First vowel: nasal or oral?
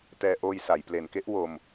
oral